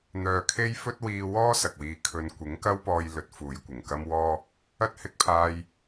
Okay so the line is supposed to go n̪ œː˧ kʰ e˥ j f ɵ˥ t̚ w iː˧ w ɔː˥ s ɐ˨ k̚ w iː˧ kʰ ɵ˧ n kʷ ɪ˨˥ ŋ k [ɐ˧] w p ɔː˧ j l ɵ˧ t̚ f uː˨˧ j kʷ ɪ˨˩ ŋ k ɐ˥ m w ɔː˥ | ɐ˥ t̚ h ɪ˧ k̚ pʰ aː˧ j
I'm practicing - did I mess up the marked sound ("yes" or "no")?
yes